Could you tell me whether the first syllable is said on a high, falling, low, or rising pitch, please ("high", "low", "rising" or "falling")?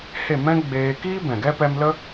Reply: falling